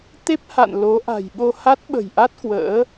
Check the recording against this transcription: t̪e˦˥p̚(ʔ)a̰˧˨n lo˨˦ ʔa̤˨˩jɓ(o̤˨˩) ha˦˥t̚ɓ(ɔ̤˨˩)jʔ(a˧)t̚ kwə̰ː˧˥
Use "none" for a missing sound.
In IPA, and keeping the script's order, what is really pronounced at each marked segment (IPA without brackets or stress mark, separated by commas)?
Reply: h, o˧, ə̤˨˩, a˦˥